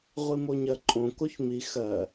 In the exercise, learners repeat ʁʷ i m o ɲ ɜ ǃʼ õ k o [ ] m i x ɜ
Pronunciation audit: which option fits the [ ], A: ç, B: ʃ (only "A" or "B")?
A